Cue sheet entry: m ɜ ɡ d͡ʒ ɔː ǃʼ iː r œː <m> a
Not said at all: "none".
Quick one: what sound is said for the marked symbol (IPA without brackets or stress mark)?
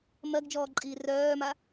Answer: m